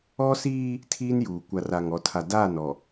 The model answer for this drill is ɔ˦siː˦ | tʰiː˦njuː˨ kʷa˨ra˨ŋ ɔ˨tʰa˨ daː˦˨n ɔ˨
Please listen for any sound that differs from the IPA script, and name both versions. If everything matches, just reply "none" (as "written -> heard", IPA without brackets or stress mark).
none